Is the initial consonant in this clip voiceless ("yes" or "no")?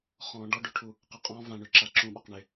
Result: yes